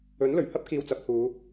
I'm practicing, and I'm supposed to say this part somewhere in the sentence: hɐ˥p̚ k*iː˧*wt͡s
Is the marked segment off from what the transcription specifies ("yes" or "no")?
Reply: no